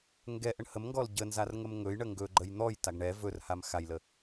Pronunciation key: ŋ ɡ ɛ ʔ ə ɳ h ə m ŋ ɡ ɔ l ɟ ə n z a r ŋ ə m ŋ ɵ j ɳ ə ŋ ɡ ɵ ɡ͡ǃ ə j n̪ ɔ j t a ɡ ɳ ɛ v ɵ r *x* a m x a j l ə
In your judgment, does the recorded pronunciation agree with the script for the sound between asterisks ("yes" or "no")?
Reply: no